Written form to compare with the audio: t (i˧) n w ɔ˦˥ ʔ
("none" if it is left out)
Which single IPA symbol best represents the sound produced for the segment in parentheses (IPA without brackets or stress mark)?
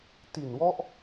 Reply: i˨˩